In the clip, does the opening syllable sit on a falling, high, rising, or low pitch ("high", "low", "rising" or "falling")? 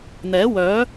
rising